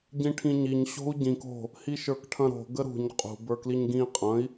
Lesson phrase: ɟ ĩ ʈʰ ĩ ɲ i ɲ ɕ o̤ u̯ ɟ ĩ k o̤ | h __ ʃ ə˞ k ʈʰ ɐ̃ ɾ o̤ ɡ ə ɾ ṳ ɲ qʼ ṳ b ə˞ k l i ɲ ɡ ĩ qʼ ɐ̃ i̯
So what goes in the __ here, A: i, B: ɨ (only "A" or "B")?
A